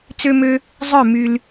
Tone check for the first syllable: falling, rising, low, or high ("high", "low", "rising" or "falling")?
high